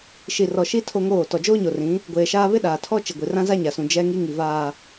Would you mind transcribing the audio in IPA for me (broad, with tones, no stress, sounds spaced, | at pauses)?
ʃ i˨ r ɔ˨ ʃ i˦ tʰ o˦ ŋ oː˦˨ t ɔ˨ d͡ʒ oː˦ ɲ o˨ r ĩ˨˦ | ɡʷ eː˨ ʃ aː˦ β ɪ˦ ɗ aː˨ tʰ ɔ˦ t͡ʃ ɪ˨ ɡʷ i˨ r ã˦ z a˦ ɲ a˨ s ũ˨ d͡ʒ ɛ˦ ŋ i˦ ŋ i˨ v aː˨